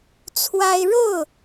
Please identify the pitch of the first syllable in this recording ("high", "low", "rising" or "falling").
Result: high